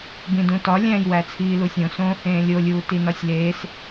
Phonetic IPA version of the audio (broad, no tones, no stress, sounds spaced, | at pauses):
b ĩ d ũ t ɒ lʲ æ̃ j w æ t͡sʰ iː l u sʲ õ s õː h ẽː lʲ o lʲ uː t i n ɒ sʲ l eː s